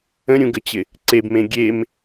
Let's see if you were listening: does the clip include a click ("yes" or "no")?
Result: yes